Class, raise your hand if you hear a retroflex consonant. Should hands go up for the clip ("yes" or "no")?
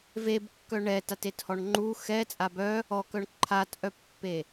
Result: yes